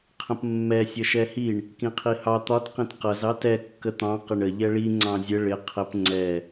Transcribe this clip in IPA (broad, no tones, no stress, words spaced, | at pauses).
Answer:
qʰə̃pmːɛ sʲʌʃɛhiɳ | kĩqʰihɑ t̪ɒt qĩtqʌz ɑtɛ kːət̪ɑ̃ qɪɳə ʎɛɭi ŋ͡ǀɑ̃zʲə ɭɪ qʰəp ŋ͡ǀɛ